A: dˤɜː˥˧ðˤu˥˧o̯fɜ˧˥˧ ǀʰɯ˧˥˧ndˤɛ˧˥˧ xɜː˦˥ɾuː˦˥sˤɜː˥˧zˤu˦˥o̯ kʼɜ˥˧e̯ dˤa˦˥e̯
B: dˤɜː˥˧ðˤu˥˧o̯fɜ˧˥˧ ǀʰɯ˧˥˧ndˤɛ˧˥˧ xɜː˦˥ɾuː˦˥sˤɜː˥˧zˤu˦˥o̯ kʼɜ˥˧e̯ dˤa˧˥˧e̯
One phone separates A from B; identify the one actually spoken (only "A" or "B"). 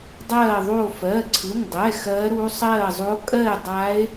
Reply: A